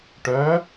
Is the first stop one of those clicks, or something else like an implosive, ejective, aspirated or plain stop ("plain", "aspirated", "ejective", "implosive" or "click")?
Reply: plain